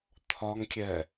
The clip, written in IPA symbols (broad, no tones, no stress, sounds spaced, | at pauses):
t̪ʰ ɒ ŋ kʲ ɛ